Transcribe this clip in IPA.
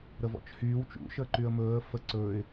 ɾ ə v ɔ̰ t͡ʃ h yː w t͡ʃ ṵ ʃ əː ǃ y ə̯ m ɵː ə̯ f ə ǀ ɵː ɪ̯

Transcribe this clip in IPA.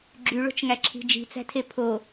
ɡ͡ǁ y ɭ o̤ t͡ʃ ŋ æ ǁʰ i̤ d͡ʒ i̤ t͡s æ̤ tʰ e pʰ o

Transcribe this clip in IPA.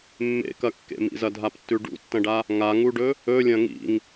mː ḛ k ɐ kː ḛ m ḭ z ɐ dʱ a p tː ʉ ɖ ṵ tː ɐ̃ ɖ a | ŋ a ŋ u ɖ ɵ | ɵ lʲ ɐ̃ ŋ ḭ ŋ

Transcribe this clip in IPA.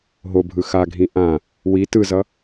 ɦ o bʱ ɯ x a ɡʱ ĩ ʔ ã | w i t ɯ z ʌ

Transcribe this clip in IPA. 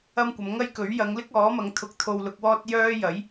ɐ˥ m kʷ ɐ˨˧ m ŋ ɐ˥ j k ɵ˨˥ ɥ j ɐ˨˧ ŋ l ɪ˥ k̚ ɔː˨˥ m ɐ˨˧ ŋ t̪ʰ ʊ˨ k̚ t̪ʰ o˧ w l ʊ˧ k̚ w ɔː˥ t̚ j œː˥ j ɐ˨˥ j

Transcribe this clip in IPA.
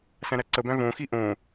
s æ̃ ɾ æ ǀ ə b æ̃ v õ x i ʔ õ

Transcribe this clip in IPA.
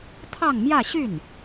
t̪ʰ ɑ˥˧ ŋ m j ä˥˧ ɕ y˥˩ n

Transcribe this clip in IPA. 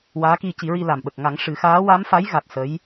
w aː˧˥ k i˧ c i˨˩˦ ɹ i˧ l a˨˩ m ɓ ə˨˩ k̚ ŋ a˨˩˦ ŋ ʂ ɨ˨˩˦ x aː˧˥ w a˧˥ m f a˧˥ j ɣ a˨˩ t̚ s ə˧˥ j

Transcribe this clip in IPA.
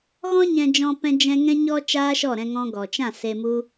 ɣ ɔ̃˦ ɲ ɛ̃˦ d͡ʒ ɔ̃˦ p ɛ̃˦ d͡ʒ ɛ̃˦ ŋ ɛ̃˦ ɲ ɔ˦ t͡ʃ aː˦ ʃ ɔ˦˨ ɾ ɛ̃˧ ŋ ɔ̃˧ ɡ ɔ˨ t͡ʃ ã˦˨ s e˧ m u˦

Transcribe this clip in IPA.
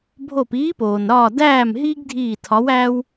bʱ o˦˨ p iː˧˥ p oː˩ n ɾ ɒː˦˨ d æː˦˨ m ɦ iː˥ ɡ dʱ iː˦˨ tʰ ɒ˧˥ w æː˥ w

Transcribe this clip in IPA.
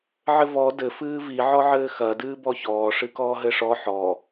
ʕ ɘ v ɔ d ɘ f ɨː v i ʕ ɔ ʕ ɘː x ɐ d ɨː b ɔ ç ɔː ʂ ɨ k ɔː ɦ ɘ ʂ ɔ ħ ɔ

